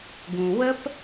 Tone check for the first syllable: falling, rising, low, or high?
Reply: low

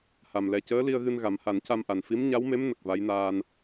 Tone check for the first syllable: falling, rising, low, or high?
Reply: low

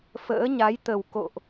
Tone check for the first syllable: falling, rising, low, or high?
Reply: rising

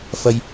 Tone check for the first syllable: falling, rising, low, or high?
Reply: high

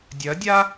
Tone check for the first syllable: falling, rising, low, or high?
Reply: rising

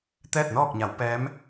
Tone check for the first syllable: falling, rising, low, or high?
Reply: falling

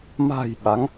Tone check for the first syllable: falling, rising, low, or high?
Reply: low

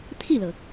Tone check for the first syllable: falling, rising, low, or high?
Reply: falling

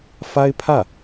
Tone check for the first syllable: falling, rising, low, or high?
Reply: high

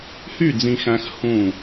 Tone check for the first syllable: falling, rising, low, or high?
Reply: falling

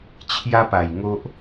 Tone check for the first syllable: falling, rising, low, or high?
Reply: high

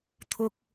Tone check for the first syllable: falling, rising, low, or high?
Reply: high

